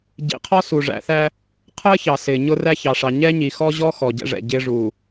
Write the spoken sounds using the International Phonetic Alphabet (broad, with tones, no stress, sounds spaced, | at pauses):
ɟ ḭ˨ qʰ ɔ˦ s u˨ ʐ æ̰˨ θ æ˦ | qʰ əː˦ ç ɑ˨ s ɪː˨ ɲ ʊ˦ r æ˦ ç ɑ˨ ʂ ɑ˨ ɲ ɛ˦ ɲ i˨ x ɔ˦ ʑ ɔ˦ x ɔ˨ ɟ ɛ̰˦ ʐ ɛ̰˨ ɟ ɪː˦ ʐ uː˨